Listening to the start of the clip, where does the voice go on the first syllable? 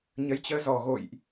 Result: rising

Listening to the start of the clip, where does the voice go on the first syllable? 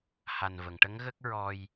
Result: low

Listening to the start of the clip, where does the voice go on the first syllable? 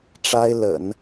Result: high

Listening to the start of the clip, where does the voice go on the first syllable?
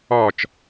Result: falling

